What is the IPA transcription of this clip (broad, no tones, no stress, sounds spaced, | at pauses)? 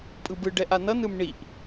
pʼ ɯ b ɯ ɖ ɛ ʔ a n ʌ n ɯ m ɳ i ʔ